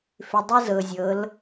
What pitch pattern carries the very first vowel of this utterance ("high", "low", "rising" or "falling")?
low